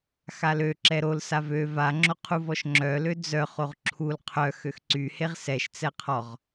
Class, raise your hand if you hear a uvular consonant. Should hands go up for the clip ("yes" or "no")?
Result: yes